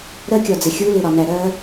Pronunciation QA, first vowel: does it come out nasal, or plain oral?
oral